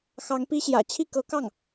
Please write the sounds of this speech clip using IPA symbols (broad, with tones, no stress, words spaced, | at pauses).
xɑ˧˥ŋpi˥ɕjä̰˨˩ t͡ɕʰi˥˩kɤ˧˥kɑ˥˩ŋ